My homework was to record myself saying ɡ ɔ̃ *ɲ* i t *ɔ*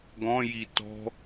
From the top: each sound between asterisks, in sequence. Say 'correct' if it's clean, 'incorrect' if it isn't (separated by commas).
incorrect, incorrect